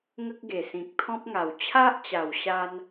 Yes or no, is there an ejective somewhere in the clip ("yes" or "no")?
no